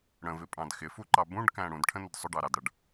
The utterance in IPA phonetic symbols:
ɽ ə̃ v ɪ pʼ ɑ̃ d x ɪ f u ǃ ɑ b ũ ɖ k æ̃ ɽ ũ d ʈʰ ə̃ n ʊ d sˤ ʊ ɖ ɑ ɾ ɑ d ɽ ʌ ɖ

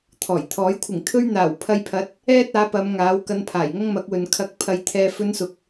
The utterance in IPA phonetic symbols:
t̪ʰ ɔː˨˩ j t̪ʰ ɔː˨˥ j kʷʰ ɪ˨˩ ŋ t̪ʰ ɵ˥ ɥ n̪ aː˨˩ w pʰ ɐ˧ j pʰ ɐ˨˥ t̚ | ɛː˥ t̚ aː˨˥ p ɐ˨˧ m ŋ aː˨˥ w k ɐ˧ n pʰ aː˨˩ j ŋ ɐ˥ ŋ m ɐ˨˥ k̚ w ɵ˨ n kʰ ɐ˧ k̚ pʰ ɐ˧ j t̪ʰ ɛː˧ f ɵ˧ n s ʊ˨ k̚

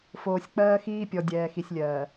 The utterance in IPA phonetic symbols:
f oː˨ sʲ k͡p ɜː˦ x iː˦ pʲ ɔ˨ dʲ ɛː˨ x i˨ sʲ lʲ ɜː˨

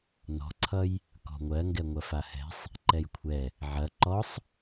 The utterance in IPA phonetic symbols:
n ɔ̤ ǀʰ ʌ j | k ɔ̤ ŋʷ ɜ ŋ ɡ ɛ ŋʷ ɐ f a h ɛ̤ sˤ | ǃ ɛ j kʷʰ ɛ | ʕ ɐ ǃ ɔ sˤ

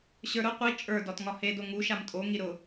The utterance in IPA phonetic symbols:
ɕ ə˞ ɾ ʊ qʷ i t͡ʃʼ ə˞ d ɒ t ŋ ɒ h e d o ŋ u ʃ a m tʼ o ŋ i ɾ ʊ

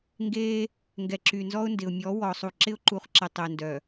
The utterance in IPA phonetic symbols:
ŋ ɡ eː˦ | ŋ ɡ ɛ˨ ǁ y˨ n z ɔ˦ ʊ̯ n d ɪ˨ ʊ̯ mʲ ɔ˨˦ w ɔ˨ sˤ u˨ ǁ ɪ˦ ʊ̯ ǃ u˨˦ χ ǁ ɪ˨ tˤ ɪː˨ n d œ˨

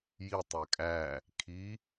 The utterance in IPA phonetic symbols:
j i tˤ e kʼ æ | kʰ i

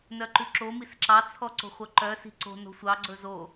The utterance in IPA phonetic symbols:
n œ ǃ ʉ ǁ o m i s ǁ ɑ t͡sʰ ɔ ǀ o̤ χʷ œ ǃ œ s i̤ ǀ o̤ n o̤ sʷ ɑ ɡ͡ǀ ɵ z o

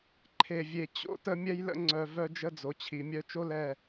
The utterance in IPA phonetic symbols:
ǃʰ e˨ vʲ e˨ t͡ɕ o̰˦ t ə˦ mʲ ɛ˦ j l ə̰˦ ŋ͡ǀ œ˨ v œ˦ d͡ʒ ə˦ d͡z o˨ t͡ɕʰ i˨ mʲ œ˦ t͡ʃ o˦ l ɛ˦˨

